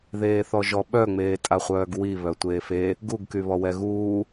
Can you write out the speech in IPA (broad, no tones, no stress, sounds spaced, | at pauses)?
ð eː θ ɔ ʒ ɔ ɓ œ ŋ͡m eː tʼ a χʷ œː ɡ w i β œ tʷ eː f e | ɡ u ɡ k y β ɔ w ɛ ɣ uː